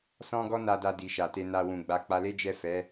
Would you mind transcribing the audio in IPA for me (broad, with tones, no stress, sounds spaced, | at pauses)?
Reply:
s ɔ̃˦ ɡ ɔ˦ n a˧ d a˧ d i˨ ʃ a˨ t e˧ n a˨ w ũ˨ ɡ͡b a˧ k͡p a˧ l e˦ d͡ʒ ɛ˦˨ f ɛ˨˦